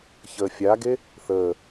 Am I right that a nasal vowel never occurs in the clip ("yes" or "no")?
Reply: yes